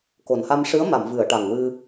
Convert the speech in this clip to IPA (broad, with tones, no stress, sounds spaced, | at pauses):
k o˨˩ n h a˧ m ʂ ɨ˧˥ ə̯ m a˨˩˨ m v ɨ˨˩˨ ə̯ ʈ a˨˩ ŋ w ɨ˧